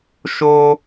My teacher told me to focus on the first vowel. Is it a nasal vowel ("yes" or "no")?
no